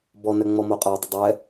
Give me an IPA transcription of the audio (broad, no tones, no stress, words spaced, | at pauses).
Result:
bɔnɛ ŋ͡mɔmoqʼadˤʊ dˤɛ